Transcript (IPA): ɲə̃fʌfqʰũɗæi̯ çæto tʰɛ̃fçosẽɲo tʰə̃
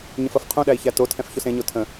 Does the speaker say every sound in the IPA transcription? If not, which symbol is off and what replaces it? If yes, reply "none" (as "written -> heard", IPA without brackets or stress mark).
none